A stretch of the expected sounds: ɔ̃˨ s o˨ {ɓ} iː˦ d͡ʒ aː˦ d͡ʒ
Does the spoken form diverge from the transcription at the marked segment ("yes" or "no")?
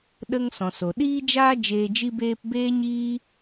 yes